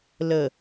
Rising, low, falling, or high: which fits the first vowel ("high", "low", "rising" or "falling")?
low